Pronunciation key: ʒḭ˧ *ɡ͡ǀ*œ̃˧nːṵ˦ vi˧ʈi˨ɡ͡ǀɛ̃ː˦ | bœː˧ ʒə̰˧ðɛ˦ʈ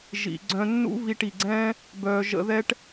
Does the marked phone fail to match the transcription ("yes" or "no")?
no